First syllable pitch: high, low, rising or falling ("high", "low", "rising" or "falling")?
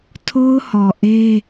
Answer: high